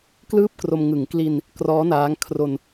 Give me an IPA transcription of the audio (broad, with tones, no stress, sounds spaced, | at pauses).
k l ɯː˥˩ p̚ k r o˧ m ŋ ɯ˩˦ ŋ k l i˧ n | k r ɔː˦˥ n aː˦˥ ŋ kʰ r o˧ n